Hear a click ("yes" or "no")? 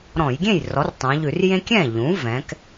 no